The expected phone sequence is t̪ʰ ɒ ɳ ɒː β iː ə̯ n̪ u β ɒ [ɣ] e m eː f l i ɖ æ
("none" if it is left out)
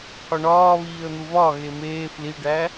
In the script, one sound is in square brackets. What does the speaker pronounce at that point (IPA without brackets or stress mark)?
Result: ɣ